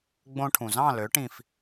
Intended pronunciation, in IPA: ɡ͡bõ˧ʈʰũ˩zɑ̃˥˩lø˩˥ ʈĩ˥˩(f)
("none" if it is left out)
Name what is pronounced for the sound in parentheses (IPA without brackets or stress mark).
f